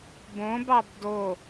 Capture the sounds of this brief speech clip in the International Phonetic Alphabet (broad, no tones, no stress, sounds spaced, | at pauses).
b õ b ɑ b d o